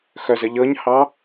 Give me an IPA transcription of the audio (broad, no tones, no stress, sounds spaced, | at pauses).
x œ z ə ʎ ɤ ɲ h ɑ